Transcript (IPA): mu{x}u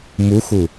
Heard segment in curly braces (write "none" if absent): x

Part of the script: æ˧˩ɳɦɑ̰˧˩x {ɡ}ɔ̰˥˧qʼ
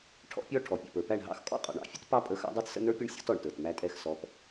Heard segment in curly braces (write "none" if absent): kʼ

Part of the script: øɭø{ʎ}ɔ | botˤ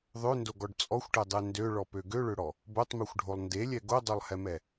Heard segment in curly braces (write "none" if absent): ɽ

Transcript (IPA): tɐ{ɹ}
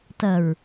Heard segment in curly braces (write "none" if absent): ɹ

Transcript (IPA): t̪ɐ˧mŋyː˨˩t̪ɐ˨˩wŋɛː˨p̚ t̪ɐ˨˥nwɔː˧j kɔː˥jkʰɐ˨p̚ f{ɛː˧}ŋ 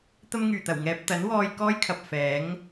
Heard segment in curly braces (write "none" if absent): ɛː˨˥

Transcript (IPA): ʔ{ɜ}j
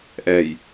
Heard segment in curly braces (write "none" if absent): ɛ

